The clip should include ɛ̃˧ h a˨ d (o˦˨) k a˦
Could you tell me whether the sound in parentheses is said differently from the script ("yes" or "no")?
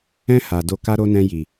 yes